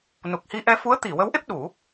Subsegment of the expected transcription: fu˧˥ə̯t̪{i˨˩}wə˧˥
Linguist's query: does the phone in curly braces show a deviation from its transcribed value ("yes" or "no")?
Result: yes